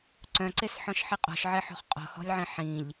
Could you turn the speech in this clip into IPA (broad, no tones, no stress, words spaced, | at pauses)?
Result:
ǀœ̃ǀesħɔ̃ʃ ħiqʼɔ̤ʃʕe ħɔ̤χqʼɔ̤hɔ̤lʲʕĩ ħĩʎ